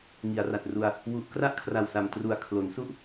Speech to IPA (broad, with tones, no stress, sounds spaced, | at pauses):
ŋ i˩˦ a̯ r a˨˩ t̚ r u˧ a̯ | w u˨˩ ʔ k r a˦˥ ʔ kʰ r a˨˩ w s a˨˩ m t r u˨˩ a̯ kʰ l o˩˦ n s u˥˩ ʔ